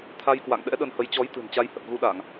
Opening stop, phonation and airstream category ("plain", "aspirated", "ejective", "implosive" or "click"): aspirated